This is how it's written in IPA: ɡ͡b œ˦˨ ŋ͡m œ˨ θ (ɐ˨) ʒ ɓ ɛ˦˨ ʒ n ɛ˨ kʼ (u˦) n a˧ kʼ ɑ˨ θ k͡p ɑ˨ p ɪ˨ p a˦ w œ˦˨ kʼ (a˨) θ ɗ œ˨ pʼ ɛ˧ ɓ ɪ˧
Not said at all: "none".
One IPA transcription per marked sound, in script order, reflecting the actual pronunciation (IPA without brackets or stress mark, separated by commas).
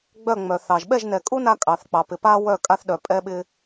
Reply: ɑ˨, u˦, a˧